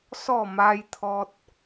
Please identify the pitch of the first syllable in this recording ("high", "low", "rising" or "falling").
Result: falling